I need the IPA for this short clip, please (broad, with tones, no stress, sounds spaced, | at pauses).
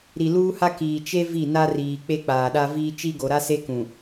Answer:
ɾ i˨ l uː˦ h a˦ k iː˨ t͡ʃ e˦ v i˦˨ n a˦ r iː˨ k͡p e˦ k͡p aː˨ ɗ a˦ v iː˦ t͡ʃ i˦ ɡ o˨ ɾ a˦ s e˦ k ũ˨